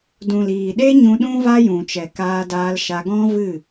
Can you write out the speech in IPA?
dũ˨liː˨ɗe˦ ɲũ˧ ɗũ˦va˦jũ˨t͡ʃɛ˨ kaː˧daː˧lʃa˧ɡɔ̃˦ vɨ˦˨

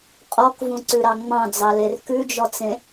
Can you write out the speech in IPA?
qʼɔkvũǀʉɾɑ ŋ͡mɑ̃d͡zɑler kʉd͡ʒɔt͡sẽ

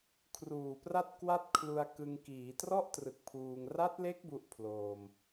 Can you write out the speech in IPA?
kʰruː˨˩pra˥˩t̚ kwa˥˩t̚kʰlu˧a̯kɯ˧ŋkiː˩˦ trɔ˥˩ʔtrɯ˨˩k̚ pʰuː˧ŋ ra˦˥t̚le˦˥k̚ bu˥˩ʔpʰloː˧m

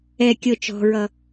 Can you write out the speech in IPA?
ɛ kʲɤ t͡ʃɔ̤ɹʌ

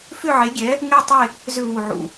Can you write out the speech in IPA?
fʏ˥˧ʕe˧˥ɡʲɛ˧˥ | ŋe˥˧tˤe˥˧ | zʏ˥˧ βu˥˧ʕṵ˥˧

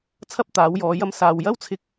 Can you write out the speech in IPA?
t͡sʰɐ˥p̚t̪aː˨˥wjɔː˨˧ jɐ˧msaː˨w jɐ˥wt͡sʰɪ˧k̚

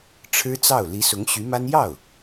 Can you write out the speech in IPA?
ʈ͡ʂʰɻ̩˥t͡sɑ˥˩ʊ̯ li˧˥sʊ˧˥ŋɕy˧˥ma˥n jɑ˥˩ʊ̯

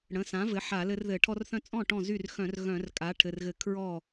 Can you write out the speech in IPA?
ɽə̃˩˧˩sã˩˥vɘ˩˥ ħa˧˩˧ lɘ˦rðɘ˧˩˧ ʈʰɔ˦rθœ̃˥˩ t͡sʼɔ̃˥˩ ʈɔ̃˥˩zy˥˩r xœ̃˧˩˧r ɣœ̃˧˩˧r kʼa˩˥ʈʰɘ˩˧˩rɣɘ˧˩˧ kʰɹɔ˥˩

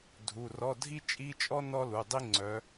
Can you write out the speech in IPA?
dʱu˩˧˩rɔ˧˥˧ dʱi˥t͡ʃʼi˧˥˧t͡ʃʼɔ˥ nɔ˥lu˩˧˩dˤi˥ ŋ͡ǀœ˨˦

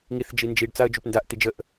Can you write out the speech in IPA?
ŋiθ d͡ʒind͡ʒiɖ t͡saə̯d͡ʒupndaʔ t̪id͡ʒəʔ

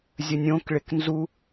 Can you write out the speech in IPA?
zʲənʲõkɭɪk nzu

